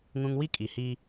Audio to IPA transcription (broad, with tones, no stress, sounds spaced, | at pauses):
ŋ ũ˦ ŋ w i˦ kʼ i˨ h i˦